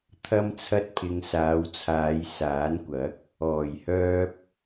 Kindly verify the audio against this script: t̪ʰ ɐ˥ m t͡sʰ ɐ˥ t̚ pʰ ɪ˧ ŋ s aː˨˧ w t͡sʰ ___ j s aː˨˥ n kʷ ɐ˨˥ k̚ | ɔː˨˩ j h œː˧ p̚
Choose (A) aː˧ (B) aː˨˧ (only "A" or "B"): B